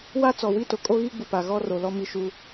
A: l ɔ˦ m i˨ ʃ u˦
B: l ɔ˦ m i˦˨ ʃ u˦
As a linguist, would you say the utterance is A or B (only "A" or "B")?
B